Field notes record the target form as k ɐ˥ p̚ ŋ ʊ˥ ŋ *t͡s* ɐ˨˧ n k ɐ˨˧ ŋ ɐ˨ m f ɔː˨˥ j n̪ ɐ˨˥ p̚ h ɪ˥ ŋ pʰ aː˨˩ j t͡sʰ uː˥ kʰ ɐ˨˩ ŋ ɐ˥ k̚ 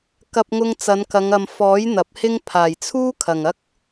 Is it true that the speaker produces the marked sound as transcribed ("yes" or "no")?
yes